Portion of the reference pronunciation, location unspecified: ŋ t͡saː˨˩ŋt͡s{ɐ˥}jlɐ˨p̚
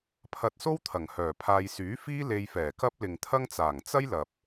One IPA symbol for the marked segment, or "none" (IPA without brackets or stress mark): ɐ˥